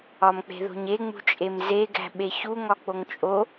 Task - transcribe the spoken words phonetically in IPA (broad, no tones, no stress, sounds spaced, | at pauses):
ɒ m k͡p e̤ ð o̤ ɲ e ŋ͡m ṳ t͡ʃʼ e m z e ɡ æ̤ ɓ e ç u ŋ ɒ k͡p o ŋ t͡ʃʼ o